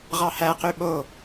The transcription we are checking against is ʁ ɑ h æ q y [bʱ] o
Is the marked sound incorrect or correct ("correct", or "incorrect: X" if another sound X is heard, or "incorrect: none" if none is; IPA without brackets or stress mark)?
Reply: incorrect: ɓ